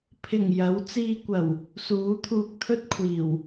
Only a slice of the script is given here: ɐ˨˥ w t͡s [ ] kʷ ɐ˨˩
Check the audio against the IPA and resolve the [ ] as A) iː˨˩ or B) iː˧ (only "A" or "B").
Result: B